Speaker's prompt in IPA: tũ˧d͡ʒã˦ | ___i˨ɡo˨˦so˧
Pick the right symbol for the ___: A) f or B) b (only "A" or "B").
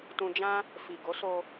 A